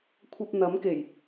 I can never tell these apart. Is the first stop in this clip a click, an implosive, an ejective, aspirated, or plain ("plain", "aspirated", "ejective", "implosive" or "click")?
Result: aspirated